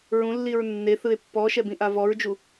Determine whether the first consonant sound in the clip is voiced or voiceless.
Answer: voiced